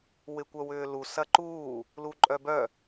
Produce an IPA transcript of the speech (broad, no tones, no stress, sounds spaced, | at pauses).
w ɪ kʷ œ w ʏː l u s ɐ ǃ uː | l u ǃʼ œ b œ